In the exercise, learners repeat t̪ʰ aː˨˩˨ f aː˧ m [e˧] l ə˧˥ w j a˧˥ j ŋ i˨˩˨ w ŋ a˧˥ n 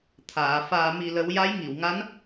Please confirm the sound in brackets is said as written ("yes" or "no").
no